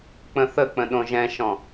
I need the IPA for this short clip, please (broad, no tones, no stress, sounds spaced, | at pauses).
k͡p ə̃ θ ə k͡p ə̃ ɗ õ ʒ ɛ̃ ʃ ɔ̃